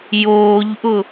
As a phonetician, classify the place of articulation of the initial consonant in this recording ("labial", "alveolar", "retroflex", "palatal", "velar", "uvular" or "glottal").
palatal